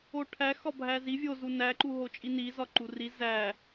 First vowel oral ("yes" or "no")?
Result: yes